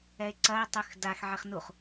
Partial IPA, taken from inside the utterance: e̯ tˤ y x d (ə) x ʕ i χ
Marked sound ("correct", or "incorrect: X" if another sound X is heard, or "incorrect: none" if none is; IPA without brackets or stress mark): incorrect: a